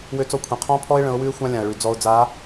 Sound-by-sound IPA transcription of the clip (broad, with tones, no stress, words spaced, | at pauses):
wø˦t͡sɔ˦kʷʰĩ˨ qʰɔ̃˦pʰɔ˦ɪ̯ ɭə̃˨˦ʊ̯wʉ˦ɪ̯xʷã˦ lʲã˨ə̯ɭʉ˨ d͡zɔ˨ʊ̯d͡za˨˦